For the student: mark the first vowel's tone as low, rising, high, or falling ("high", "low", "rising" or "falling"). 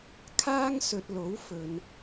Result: high